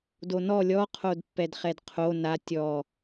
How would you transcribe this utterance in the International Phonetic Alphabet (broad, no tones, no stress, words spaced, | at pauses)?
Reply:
donɔ lʲɔqʰodpːɛd χɛdqʰo na tʲɔ